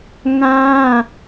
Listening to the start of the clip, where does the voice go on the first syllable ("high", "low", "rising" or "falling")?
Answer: high